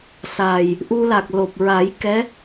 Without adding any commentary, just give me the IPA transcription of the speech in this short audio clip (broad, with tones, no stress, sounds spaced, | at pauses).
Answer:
s a˨˩ j | ʔ u˧ l a˨˩ k̚ l o˨˩ p̚ ɹ a˨˩˦ j k ɛ˧˥